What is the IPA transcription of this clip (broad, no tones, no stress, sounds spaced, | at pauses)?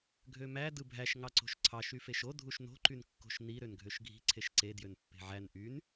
ɡʱ ø m æ d ɯ bʱ æ ʃ ŋ ɑ ǀ o̤ ʃ ǀʰ ɑ ʃ y f e ʃ o dʱ u ʃ n o̤ ǃ y n kː o̤ ʃ n i ɾ ø n ɡʱ ø ʃ ɡʱ i̤ ǀʰ e ʃ ǀ e d j ø n pː e̤ ʕ æ n ʔ y n